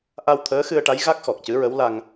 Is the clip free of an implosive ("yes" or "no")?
yes